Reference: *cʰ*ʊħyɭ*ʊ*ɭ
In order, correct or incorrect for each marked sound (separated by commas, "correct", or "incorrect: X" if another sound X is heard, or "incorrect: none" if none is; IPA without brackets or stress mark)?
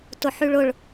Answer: incorrect: t, correct